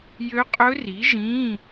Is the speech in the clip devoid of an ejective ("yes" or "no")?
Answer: no